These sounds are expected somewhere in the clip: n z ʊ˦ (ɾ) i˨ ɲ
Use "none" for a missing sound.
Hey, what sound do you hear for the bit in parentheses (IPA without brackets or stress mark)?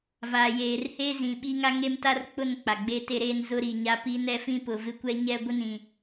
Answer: ɾ